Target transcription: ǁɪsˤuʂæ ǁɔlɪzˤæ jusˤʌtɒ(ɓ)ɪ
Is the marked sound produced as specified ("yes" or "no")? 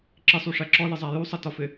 no